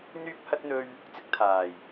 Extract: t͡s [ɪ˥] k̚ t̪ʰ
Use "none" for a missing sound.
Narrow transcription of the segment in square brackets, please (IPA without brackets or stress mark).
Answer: ɪ˥